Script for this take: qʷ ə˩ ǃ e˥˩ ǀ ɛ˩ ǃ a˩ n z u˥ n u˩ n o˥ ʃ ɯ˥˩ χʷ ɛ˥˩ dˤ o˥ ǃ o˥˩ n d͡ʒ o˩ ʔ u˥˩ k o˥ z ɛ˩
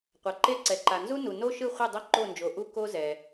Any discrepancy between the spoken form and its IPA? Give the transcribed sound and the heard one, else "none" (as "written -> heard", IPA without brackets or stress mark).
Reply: ə˩ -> a˩